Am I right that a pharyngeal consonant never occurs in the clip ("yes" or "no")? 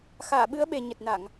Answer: yes